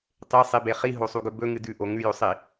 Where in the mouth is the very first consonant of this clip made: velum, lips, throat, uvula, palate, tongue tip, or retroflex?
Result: tongue tip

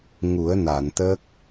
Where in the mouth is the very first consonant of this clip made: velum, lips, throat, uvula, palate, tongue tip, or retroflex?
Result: velum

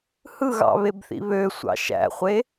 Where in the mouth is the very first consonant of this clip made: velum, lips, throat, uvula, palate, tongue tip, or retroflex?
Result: throat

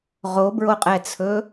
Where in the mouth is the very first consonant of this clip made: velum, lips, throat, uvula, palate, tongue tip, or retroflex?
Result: uvula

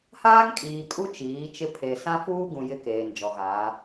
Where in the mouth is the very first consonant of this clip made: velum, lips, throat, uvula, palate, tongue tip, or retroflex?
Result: throat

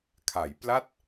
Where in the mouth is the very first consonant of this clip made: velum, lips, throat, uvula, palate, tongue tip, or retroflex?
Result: velum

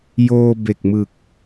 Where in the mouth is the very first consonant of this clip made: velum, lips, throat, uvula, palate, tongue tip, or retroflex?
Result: palate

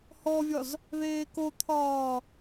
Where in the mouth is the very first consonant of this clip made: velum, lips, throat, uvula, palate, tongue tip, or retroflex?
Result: throat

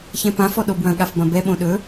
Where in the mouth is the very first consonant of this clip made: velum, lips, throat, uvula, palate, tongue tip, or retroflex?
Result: palate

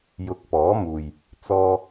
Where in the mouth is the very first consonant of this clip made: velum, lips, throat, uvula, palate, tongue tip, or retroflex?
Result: palate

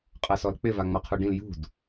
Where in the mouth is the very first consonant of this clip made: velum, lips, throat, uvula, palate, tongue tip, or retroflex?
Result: uvula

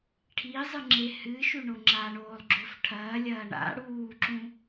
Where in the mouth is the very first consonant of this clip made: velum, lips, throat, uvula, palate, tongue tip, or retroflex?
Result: retroflex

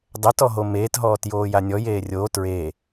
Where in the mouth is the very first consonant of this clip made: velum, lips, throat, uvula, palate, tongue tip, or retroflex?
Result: tongue tip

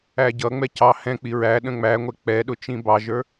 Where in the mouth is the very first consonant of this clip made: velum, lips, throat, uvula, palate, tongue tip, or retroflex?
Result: palate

